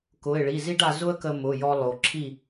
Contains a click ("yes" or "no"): yes